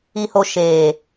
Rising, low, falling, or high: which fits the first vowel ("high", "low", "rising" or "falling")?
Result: low